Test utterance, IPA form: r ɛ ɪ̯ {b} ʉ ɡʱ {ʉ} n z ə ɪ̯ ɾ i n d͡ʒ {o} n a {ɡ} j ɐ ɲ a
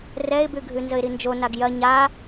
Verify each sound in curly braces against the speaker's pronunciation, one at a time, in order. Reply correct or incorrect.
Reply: correct, correct, correct, correct

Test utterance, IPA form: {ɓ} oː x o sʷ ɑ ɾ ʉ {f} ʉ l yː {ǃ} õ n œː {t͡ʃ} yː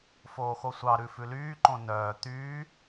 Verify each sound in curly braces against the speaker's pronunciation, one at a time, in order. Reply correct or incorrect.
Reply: incorrect: f, correct, correct, incorrect: t̪

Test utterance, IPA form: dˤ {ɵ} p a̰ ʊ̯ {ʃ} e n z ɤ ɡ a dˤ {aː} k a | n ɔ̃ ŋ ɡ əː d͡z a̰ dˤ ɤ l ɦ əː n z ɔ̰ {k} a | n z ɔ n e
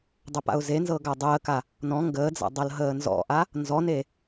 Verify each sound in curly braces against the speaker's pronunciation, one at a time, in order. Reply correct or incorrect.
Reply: correct, incorrect: z, incorrect: əː, incorrect: ʔ

